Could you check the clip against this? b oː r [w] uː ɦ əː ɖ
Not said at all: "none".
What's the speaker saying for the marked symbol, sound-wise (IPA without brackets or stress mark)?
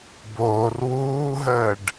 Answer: w